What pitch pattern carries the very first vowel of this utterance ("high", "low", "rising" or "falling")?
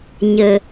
low